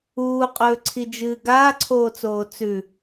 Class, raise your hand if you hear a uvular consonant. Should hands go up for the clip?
yes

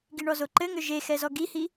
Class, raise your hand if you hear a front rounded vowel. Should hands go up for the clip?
yes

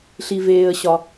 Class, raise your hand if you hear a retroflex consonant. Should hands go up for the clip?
no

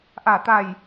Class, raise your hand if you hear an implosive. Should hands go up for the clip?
no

